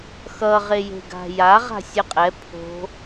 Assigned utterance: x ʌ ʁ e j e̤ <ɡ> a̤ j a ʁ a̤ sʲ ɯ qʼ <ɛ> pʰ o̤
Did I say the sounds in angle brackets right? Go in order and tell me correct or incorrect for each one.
correct, correct

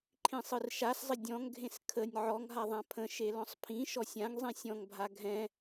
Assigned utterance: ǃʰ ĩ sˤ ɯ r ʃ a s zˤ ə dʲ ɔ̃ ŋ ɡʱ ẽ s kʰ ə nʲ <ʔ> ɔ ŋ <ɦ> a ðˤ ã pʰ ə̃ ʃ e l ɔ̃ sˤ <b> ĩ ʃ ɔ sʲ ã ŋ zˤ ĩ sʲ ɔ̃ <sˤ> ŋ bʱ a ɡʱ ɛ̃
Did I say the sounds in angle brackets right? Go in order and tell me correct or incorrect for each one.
incorrect, correct, incorrect, incorrect

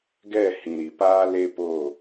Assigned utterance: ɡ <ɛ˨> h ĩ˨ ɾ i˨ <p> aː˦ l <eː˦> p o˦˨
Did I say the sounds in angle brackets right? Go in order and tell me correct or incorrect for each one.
incorrect, correct, incorrect

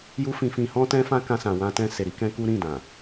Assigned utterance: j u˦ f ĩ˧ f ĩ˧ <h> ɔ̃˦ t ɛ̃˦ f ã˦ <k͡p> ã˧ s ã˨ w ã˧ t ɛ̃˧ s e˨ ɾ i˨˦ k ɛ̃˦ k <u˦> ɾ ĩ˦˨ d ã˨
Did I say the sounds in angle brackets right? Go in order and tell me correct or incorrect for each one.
correct, incorrect, correct

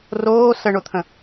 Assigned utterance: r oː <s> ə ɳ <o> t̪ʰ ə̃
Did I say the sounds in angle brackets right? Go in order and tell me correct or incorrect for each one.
correct, correct

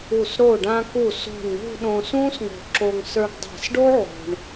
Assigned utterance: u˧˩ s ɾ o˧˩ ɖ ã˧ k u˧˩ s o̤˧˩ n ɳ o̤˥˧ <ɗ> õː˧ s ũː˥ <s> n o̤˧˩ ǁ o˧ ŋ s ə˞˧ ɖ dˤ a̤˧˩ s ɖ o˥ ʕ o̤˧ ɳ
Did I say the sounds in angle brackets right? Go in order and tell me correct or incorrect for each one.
correct, correct

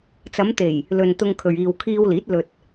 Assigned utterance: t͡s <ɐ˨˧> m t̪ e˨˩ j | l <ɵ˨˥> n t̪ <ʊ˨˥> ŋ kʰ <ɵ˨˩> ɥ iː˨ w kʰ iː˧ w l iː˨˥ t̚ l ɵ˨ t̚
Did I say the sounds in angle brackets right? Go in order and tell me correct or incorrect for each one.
correct, incorrect, incorrect, incorrect

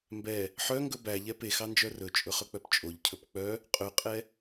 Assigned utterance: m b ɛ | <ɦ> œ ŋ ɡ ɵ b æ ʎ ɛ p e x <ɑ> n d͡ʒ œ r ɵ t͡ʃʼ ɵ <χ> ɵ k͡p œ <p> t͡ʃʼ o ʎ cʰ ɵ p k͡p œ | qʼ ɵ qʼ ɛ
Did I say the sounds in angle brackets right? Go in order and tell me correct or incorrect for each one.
incorrect, correct, correct, correct

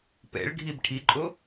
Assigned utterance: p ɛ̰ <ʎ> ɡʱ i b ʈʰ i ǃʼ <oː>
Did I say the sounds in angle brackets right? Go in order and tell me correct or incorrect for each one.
incorrect, incorrect

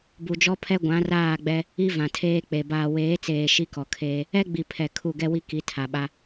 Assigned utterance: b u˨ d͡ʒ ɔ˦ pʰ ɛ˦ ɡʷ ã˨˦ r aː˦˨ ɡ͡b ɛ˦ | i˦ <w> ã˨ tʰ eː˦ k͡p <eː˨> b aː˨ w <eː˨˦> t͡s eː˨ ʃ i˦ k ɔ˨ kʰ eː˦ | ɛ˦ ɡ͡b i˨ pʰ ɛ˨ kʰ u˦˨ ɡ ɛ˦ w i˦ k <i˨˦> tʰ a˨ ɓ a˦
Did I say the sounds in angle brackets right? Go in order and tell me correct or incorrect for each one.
incorrect, incorrect, correct, correct

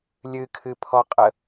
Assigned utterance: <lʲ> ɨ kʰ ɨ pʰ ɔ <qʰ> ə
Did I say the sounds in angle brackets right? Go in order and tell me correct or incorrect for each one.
correct, incorrect

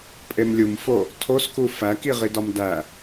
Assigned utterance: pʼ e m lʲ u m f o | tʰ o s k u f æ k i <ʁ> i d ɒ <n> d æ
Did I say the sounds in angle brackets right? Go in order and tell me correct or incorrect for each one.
correct, incorrect

